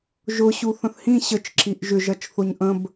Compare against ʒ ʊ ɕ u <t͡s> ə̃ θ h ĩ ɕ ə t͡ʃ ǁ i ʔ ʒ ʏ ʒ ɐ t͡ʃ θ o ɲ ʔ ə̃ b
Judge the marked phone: incorrect: θ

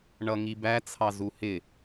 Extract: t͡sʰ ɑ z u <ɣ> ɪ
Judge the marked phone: incorrect: h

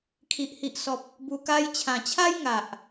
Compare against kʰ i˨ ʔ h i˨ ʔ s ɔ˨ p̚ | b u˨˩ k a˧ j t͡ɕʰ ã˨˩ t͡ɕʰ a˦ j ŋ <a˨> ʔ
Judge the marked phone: correct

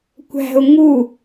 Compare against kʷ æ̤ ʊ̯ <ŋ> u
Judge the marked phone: correct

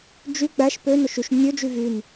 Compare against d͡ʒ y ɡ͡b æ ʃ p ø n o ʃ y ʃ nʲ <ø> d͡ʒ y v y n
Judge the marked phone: correct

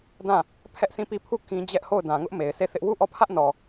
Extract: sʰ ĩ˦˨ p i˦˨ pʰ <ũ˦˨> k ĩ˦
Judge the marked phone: incorrect: u˦˨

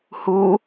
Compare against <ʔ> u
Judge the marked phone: incorrect: h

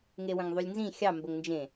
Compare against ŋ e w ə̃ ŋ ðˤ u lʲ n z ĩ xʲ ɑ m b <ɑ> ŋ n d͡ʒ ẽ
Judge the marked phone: incorrect: ə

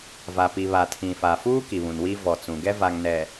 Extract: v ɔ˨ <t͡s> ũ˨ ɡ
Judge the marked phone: correct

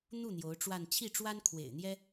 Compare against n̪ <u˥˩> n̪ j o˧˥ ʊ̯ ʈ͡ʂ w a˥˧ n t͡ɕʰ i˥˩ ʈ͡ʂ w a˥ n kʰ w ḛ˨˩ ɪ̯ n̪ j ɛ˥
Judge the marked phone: correct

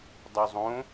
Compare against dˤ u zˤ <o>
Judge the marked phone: incorrect: õ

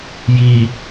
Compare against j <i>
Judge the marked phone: correct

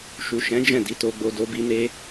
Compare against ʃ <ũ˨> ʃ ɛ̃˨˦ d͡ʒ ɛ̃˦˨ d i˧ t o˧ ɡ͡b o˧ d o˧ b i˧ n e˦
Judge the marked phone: incorrect: u˨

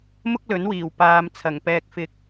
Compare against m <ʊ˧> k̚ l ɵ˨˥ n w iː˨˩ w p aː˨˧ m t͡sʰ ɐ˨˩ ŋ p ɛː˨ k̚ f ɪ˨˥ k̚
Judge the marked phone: incorrect: ʊ˥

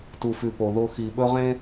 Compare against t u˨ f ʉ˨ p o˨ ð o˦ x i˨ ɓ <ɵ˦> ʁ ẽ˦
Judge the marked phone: correct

